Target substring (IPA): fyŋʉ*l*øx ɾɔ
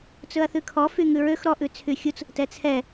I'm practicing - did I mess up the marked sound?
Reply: yes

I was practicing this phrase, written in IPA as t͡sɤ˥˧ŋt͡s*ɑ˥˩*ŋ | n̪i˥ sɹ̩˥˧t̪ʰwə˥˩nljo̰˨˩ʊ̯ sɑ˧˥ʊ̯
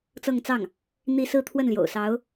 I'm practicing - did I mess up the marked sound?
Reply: no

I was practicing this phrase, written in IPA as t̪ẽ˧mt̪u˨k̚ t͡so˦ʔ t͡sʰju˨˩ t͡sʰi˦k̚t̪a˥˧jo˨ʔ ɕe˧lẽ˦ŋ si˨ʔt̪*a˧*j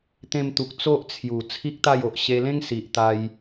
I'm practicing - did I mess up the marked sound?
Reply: no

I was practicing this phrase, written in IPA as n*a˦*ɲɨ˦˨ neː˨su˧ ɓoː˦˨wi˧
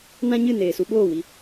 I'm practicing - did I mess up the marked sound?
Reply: yes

